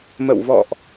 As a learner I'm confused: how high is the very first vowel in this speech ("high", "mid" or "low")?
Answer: mid